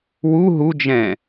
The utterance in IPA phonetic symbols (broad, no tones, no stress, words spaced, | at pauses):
wu ɦud͡ʒɛ̃